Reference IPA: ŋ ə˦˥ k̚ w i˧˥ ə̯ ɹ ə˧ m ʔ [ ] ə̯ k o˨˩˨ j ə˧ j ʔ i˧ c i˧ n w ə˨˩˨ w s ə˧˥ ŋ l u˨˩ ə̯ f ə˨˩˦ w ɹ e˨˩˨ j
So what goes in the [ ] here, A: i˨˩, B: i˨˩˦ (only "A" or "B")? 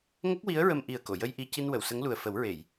A